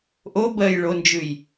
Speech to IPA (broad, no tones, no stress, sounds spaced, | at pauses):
ʔ o b ɜ j ɭ o n d͡ʒ ʉ j